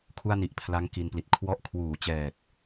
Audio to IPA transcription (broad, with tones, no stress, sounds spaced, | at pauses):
kʰ u˥˩ a̯ n i˨˩ ʔ pʰ l a˦˥ ŋ k i˧ n p l i˨˩ t̚ kʰ w ɔ˦˥ ʔ kʰ w uː˩˦ t͡ɕ ɛː˨˩ k̚